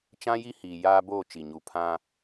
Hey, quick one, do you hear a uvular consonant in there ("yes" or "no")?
no